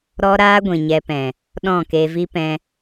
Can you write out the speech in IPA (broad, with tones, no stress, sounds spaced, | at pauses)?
ɾ ɔ˧ ɾ aː˧ ɡʷ ĩ˨ ɲ ɛ˧ p ɛ̃˨ | ɗ ɔ̃˦˨ k e˧ v i˦ p ɛ̃˦